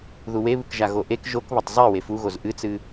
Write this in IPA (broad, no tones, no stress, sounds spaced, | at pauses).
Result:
ð u w e β ɨ k ʒ a ɣ o ʔ e k ʒ o k β ɐ tˤ zˤ e w e f u ɣ o z ʔ ɨ t͡s ɨ